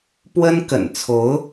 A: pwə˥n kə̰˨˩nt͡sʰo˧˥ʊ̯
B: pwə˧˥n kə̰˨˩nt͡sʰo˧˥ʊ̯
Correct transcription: A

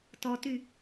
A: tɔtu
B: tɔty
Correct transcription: B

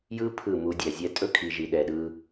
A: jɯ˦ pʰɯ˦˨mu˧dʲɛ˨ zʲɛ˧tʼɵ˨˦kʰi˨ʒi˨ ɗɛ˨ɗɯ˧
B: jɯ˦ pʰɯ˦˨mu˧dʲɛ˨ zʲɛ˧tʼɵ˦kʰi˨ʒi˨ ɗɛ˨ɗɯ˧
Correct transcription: B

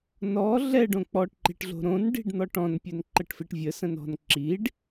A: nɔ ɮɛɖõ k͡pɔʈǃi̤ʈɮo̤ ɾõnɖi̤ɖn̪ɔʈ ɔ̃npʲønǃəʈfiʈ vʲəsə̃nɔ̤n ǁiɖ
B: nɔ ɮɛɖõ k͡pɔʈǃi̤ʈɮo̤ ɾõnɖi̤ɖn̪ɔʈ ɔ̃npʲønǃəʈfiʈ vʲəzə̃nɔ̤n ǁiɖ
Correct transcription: A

